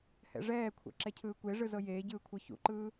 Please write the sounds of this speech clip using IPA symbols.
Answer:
hɛ̰ʐɛːkʷʰɛ̰ ǁɛcʰɯːkʷeʐɯ zɤjeːɟɯː kʷʰɤçṵǃɯː

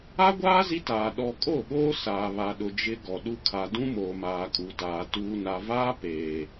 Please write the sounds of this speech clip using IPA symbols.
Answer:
a˦ɡʷaː˦ zi˦taː˨ ɗɔ˨ kʼo˦˨ɓoː˦ saː˨βa˨ɗʊ˨ d͡ʒɪ˦ɡɔ˨ɗu˦ kʰa˨dũ˦moː˨ maː˨kʼu˨taː˨ tuː˨na˨vaː˦ peː˨

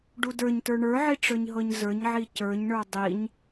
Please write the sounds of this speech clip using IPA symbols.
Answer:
ɖudə˞ɲtə˞ ɳə˞ʕi ʈ͡ʂə˞ɲɦɤɲzə˞ɲʕi cə˞ɲɳə˞ dˤiɲ

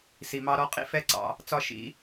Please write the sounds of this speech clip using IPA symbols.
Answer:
si˩mɑ˧ɾɔ˧ qʼḭ˥fɛ˧ ǀɑ̰˧ | t͡sɒ˧ ʃḭ˧

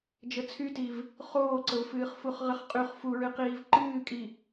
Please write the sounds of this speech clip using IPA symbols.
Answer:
d͡ʒət͡sʰytiv | χoːǀəvfɨːχfuχ ʁəχqʼyχ fuɹɨ qiːvǃɨːkʼi

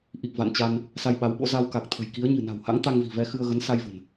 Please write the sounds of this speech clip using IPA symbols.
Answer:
ʔi˨˩k̚ va̰˧˨nt͡ɕa˧n | sa˧jɓa˨˦wɓo̰˧˥ za˧wka˨˩k̚t̪ʰə̤˨˩jki˨˦ə̯ ɲɨ̤˨˩na̤˨˩wha̰˧˥ŋ t̪a˧ŋvi̤˨˩vɛ˧ xɨ˧ə̯ɣə˨˦n sa˧jvə̤˨˩n

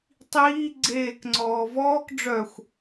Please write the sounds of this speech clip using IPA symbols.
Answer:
tˤiː ɡ͡ǀeːkŋ͡ǀɔː vɔːk ɖ͡ʐœxʷ

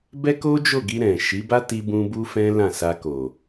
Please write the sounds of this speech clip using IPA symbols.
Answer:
bɛ˦ko˦d͡ʒo˦˨ɡi˧ ɾɛ̃˨ʃi˨˦ba˦ ti˧ bũ˧ bu˦fɛ̃˦lã˦˨sa˧ ko˨

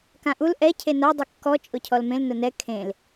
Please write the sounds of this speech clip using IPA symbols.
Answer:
kãʔul ʔɛ cʰena dˤikːɔ t͡ʃʼʊcʰɔlmẽl nʊnɛ kʰẽl

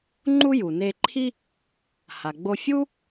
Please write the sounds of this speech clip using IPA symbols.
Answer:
ŋ͡ǃu˥ju˩ne˧ǃʰi˥ | ha˩ɡ͡bo˧ fʲu˥

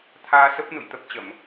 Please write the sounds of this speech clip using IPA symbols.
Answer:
t̪ʰaː˧sə˦˥p̚nṵ˧˨j t̪ə˦˥p̚t͡ɕə˧˩˨m

